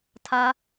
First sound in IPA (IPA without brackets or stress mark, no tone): tʰ